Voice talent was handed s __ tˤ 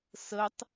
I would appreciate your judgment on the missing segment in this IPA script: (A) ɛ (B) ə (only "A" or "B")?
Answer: B